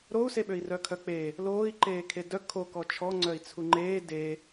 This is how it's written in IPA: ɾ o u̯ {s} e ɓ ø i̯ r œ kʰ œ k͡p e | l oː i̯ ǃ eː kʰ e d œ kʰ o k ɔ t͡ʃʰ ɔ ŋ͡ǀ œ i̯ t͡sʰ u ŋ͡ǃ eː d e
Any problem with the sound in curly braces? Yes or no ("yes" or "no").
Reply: no